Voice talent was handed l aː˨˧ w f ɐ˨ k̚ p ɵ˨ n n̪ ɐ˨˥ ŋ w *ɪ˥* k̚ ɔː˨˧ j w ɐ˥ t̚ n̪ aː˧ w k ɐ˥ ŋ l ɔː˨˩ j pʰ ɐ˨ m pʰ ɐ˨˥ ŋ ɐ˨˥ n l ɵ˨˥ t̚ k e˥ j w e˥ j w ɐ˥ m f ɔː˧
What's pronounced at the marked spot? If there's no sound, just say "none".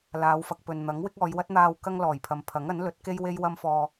ɪ˥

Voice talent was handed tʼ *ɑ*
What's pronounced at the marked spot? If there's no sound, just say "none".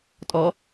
ɔ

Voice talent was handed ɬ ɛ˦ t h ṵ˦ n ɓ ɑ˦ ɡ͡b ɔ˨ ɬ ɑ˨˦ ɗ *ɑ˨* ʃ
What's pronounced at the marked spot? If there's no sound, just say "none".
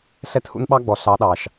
ɑ˨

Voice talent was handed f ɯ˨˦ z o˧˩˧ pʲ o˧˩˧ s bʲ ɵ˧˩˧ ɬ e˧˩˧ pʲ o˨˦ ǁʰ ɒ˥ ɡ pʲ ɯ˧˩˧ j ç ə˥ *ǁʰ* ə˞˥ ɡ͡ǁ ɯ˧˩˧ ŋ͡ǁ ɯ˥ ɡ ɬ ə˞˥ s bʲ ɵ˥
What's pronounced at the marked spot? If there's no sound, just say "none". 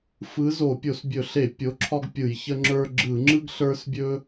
ŋ͡ǁ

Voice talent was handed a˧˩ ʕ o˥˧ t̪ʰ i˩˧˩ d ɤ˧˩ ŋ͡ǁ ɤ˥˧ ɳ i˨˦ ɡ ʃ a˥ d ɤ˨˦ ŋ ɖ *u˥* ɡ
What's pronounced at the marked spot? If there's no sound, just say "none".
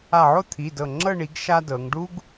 u˥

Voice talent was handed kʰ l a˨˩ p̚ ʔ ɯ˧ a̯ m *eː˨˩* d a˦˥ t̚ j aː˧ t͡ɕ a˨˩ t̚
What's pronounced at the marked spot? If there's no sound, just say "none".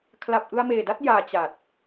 eː˨˩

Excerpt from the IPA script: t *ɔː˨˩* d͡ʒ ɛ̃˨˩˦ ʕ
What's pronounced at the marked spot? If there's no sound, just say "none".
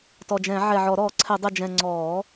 ɔ˨˩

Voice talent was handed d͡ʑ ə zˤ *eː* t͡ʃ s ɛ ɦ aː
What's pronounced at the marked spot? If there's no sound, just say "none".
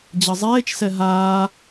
eː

